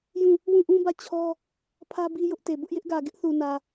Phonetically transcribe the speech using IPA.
jũ˦˨ | wũ˦˨ʔũ˦bä˦˨ t͡ɕʰɔ˦ | pʰä˦ bi˦jʊ˦ʔte˨ bʊ˦ʔjɪ˦ʔɡä˨ ɡɪ˦ʔθu˨nä˨

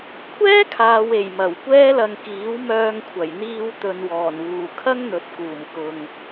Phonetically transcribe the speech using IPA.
kʷʰɛː˥kʰaː˨we˨˩j mɐ˨˩wkʷɛː˥lɐ˧ŋ kiː˨˥wmœː˧ŋkʷʰɐ˨˩jn̪iː˧w t̪ɵ˨nwɔː˨˩nwuː˨˩ kʰɐ˥ŋn̪ɵ˨t̚kuː˨˩mkʊ˨ŋ

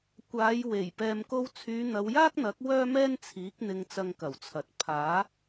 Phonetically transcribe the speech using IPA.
kʷaː˨˧jwe˨˩j pɛː˨mko˧wt͡sʰyː˨˧ n̪ɐ˨˧wjaː˥k̚n̪ɐ˨˥k̚ wœː˥mɛː˥nt͡sʰiː˨˥k̚ n̪ɪ˧ŋt͡sɐ˧ŋkɐ˨˩wt͡sʰɐ˨t̚ pʰaː˨˥

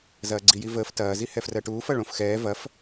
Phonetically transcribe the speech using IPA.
zɐːɡ͡ǀijivəːf tɐː zihɛfrɜʈuːf ɐɭõfxɛː vɐf

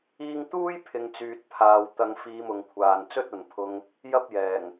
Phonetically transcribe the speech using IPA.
iː˧ŋt̪uː˥j pʰɪ˨ŋt͡syː˨t̚pʰaː˨w t̪ɐ˧ŋ fiː˧mʊ˨ŋkʷʰaː˨n t͡sɵ˥t̚ɐ˨npʰʊ˧ŋ | jɐ˥p̚jɛː˨˩ŋ

